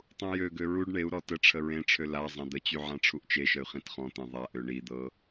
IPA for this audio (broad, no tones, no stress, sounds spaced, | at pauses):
tˤ ũ j ø ɡ ø ɹ u ɖ ɳ e u̯ ɾ ɔ t ə ʈ͡ʂʰ ə ɹ ẽ ʈ͡ʂʰ ø l a zˤ ã d̪ ə t͡ɕ y ʕ ã ʈ͡ʂʰ u ʔ t͡ʃ e ʃ ə y̯ χ ĩ t χ ɔ̃ t̪ ẽ ðˤ a ʔ ø ɳ i d̪ ɤ